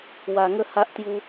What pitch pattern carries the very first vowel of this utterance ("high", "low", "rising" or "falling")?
low